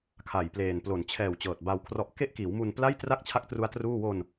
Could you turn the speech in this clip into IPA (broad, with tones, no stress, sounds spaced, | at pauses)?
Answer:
kʰ a˨˩ j p l eː˨˩ n p l o˨˩ n t͡ɕʰ ɛː˨˩ w t͡ɕ ɤː˨˩ t̚ b a˧ w kʰ r ɔ˦˥ ʔ k e˥˩ ʔ k iː˩˦ w m u˧ n p l a˥˩ j t r a˥˩ k̚ t͡ɕʰ a˦˥ k̚ t r u˦˥ a̯ t r uː˥˩ w o˧ n